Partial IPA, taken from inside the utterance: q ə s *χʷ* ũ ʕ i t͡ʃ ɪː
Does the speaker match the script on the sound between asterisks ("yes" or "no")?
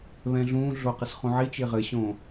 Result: no